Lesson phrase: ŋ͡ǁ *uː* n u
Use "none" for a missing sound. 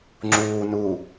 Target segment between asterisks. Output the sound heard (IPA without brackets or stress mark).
uː